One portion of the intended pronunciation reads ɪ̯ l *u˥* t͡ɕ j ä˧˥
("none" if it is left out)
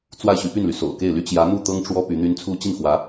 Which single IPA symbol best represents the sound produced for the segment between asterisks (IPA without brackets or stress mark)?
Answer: y˥